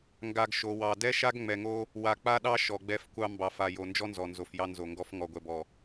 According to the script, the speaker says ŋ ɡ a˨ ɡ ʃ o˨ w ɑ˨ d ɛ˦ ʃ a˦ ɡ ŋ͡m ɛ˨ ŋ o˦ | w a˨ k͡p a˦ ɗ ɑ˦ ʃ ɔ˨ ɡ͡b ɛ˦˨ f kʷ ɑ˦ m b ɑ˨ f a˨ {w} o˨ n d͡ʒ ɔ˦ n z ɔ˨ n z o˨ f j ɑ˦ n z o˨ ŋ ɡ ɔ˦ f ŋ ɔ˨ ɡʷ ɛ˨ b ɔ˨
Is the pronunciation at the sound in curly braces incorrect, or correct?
incorrect